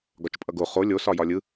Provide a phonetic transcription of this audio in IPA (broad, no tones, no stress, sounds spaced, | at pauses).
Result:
ɡ ɒ t͡ʃ pʼ ʌ ɡ o χ o lʲ o s ɒ j ɒ lʲ ɯ